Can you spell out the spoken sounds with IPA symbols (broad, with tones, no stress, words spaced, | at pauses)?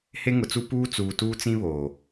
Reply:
he˦ŋʊ˨t͡su˦ puː˦t͡suː˨tuː˦t͡sĩ˦ βoː˨